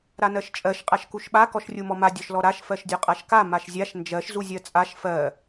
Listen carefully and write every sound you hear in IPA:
ɾ a n ɜ ʃ t͡ʃʼ ɜ ʃ qʼ a ʃ k u ʃ ɓ a k ɔ ʃ rʲ u m ɔ m a dʲ ɔ ʃ l ɔ ɾ a ʃ f ɜ ʃ dʲ ɔ qʼ a ʃ k a m a ʃ zʲ a ʃ n d͡ʒ ɜ ʃ z u zʲ ɜ t͡sʼ a ʃ f ɜ

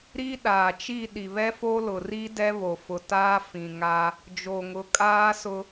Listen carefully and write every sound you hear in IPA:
ɾ i˦ ɗ aː˨ t͡ʃ i˦˨ ɗ i˨ β ɛ˦ f o˦ l ʊ˨ r i˦ d ɛ˦ β o˨ f ʊ˨ t aː˦ f ĩ˨ ŋ a˦ | d͡ʒ o˨ ŋ ʊ˨˦ kʼ aː˦ s ʊ˦

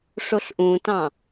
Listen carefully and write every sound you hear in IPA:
ʂ o ɬ ʔ ũ t ɑ̃

